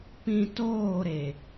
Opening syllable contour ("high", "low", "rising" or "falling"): low